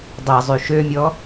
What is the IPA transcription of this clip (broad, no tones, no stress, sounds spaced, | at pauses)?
dˤ ɛ zˤ y ʃ ø mʲ ɔ